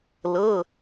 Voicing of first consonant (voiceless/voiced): voiced